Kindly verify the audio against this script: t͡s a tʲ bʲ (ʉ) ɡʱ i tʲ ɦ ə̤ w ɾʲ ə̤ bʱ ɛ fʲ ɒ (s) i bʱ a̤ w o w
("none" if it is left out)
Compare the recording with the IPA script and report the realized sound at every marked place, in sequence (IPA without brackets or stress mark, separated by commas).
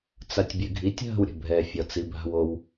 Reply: ʉ, t͡s